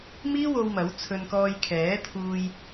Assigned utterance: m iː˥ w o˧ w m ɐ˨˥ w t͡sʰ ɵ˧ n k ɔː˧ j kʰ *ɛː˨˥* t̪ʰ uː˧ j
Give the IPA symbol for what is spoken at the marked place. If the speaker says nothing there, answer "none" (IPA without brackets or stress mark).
ɛː˨˥